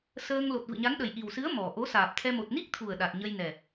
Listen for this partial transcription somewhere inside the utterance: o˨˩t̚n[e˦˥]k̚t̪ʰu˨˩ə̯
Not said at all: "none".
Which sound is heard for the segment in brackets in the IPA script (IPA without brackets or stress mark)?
i˦˥